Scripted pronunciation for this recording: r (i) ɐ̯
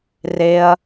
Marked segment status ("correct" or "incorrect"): incorrect